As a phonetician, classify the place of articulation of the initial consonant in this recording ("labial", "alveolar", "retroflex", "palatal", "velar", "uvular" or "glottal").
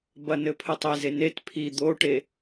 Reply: labial